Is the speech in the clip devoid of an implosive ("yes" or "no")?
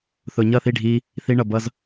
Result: yes